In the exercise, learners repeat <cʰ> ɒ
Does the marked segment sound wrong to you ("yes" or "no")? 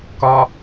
yes